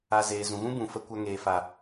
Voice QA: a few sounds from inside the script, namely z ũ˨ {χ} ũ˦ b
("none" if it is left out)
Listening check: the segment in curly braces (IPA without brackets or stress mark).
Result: ɣ